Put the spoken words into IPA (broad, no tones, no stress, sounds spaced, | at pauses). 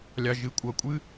lʲ ɑ ʒ ɨ kʷʼ ʌ kʷʼ ɨ